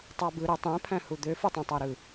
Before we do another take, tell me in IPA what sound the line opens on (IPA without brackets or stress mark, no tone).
tˤ